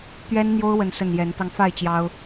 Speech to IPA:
t̪ ɥ ɛ˦ n n̪ j o˦ ʊ̯ w ə˥˨ n s ə˥˨ n j ɛ˨˦ n t̪ ɑ˧ ŋ f a˥˨ ɪ̯ t͡ɕ j ɑ˦ ʊ̯

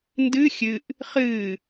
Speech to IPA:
n d ɨ xʲ ɨ ʔ | χ ɨ

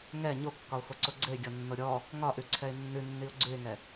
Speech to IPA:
ŋ ɛ ɲ o kː ɒ ʊ̯ x o ǀ o ɡ͡ǀ ɘ ɪ̯ ɡʲ ɔ nː o ɾʲ ɔ | ŋ ɒ ʔ ʉ ǀʰ ɛ ɪ̯ nː ʉ nː i ʊ̯ ɡ͡ǀ ʉ ɪ̯ ŋ ɛ

